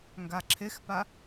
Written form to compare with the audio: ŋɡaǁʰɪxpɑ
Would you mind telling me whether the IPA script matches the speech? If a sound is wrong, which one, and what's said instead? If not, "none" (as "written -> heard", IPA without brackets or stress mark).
ɑ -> a